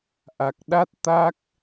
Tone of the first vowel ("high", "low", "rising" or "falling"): low